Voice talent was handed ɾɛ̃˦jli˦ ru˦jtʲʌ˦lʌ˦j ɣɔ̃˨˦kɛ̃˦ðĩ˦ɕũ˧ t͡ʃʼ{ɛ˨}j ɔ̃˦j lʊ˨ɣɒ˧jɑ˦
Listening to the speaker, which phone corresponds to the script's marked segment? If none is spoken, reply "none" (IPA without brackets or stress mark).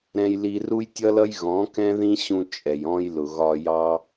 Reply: ɛ˨